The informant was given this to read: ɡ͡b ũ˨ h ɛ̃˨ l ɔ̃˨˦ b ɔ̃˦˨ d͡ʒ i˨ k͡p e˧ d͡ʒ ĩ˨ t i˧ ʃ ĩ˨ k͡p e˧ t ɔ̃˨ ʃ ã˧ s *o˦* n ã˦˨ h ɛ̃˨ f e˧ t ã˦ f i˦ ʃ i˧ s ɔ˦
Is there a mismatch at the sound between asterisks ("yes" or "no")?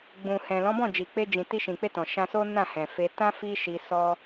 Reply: no